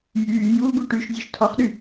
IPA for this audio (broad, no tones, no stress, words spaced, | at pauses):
jyːjuːɡu ʈyʃzʲoʃ tʰɔχɗy